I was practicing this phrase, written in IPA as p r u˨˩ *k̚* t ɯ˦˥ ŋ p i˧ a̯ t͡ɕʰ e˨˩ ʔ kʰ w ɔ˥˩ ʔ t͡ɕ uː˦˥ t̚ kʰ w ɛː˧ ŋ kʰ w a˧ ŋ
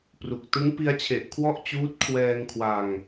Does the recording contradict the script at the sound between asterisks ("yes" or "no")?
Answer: no